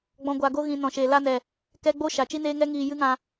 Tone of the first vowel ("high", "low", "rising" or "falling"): low